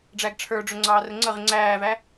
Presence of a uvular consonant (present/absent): present